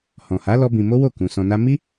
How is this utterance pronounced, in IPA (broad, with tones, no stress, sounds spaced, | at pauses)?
h ɔ̃˨ h a˨˦ l ɔ˦ b ĩ˧ m o˦ w o˦˨ k ũ˨ s ɔ̃˧ n a˦ m i˦